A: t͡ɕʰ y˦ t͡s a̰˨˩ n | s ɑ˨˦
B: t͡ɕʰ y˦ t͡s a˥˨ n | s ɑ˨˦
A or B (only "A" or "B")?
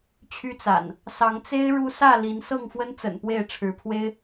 A